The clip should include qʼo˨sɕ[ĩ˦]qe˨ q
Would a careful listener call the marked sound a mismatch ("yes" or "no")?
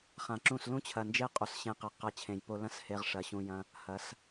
yes